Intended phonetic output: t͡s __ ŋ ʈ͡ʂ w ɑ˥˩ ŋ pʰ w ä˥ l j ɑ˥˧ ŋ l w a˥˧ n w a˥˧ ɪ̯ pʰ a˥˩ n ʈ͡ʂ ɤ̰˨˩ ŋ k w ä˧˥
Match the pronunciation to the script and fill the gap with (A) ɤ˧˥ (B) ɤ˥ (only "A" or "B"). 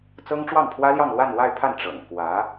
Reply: B